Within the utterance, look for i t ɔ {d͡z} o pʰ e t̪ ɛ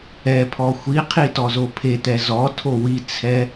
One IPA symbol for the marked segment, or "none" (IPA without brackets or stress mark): z